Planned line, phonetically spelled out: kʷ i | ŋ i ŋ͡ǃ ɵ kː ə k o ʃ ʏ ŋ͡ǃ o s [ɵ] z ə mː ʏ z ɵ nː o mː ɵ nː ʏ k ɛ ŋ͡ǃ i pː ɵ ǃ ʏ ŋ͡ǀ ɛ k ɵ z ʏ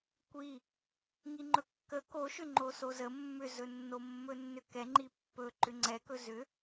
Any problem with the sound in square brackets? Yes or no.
yes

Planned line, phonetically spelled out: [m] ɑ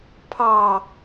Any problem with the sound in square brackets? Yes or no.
yes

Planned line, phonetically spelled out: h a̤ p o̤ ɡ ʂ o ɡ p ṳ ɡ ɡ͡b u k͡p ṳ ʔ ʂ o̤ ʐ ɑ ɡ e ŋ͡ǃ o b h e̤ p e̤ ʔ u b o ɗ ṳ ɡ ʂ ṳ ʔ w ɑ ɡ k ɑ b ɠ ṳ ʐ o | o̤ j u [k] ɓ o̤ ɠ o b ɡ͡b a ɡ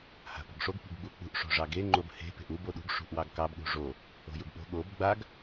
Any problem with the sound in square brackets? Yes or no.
yes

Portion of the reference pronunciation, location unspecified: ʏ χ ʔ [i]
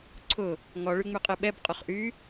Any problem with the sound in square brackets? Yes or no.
yes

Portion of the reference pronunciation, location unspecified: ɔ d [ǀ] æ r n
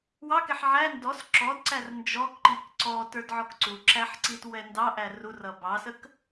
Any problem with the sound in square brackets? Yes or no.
no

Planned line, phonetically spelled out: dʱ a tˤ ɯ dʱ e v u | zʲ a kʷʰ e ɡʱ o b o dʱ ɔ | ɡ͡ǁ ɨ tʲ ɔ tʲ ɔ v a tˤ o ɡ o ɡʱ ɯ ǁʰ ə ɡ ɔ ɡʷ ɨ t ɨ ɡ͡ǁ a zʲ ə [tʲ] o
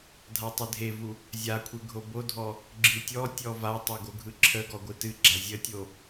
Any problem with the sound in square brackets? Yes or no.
no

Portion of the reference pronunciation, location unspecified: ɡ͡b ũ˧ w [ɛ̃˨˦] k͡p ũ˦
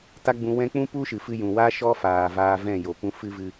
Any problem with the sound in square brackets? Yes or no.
yes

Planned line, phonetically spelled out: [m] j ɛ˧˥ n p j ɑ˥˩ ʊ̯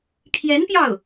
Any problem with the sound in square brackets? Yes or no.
yes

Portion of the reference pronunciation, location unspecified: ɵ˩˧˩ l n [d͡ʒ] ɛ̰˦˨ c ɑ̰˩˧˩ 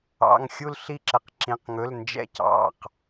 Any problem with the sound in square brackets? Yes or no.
no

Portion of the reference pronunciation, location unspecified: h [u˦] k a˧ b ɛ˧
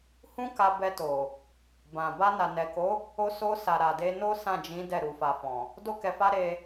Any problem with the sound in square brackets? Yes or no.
yes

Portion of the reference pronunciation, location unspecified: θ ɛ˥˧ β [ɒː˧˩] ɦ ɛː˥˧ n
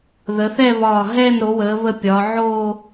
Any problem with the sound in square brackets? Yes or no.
no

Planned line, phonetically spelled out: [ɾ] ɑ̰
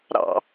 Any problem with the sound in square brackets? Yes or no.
no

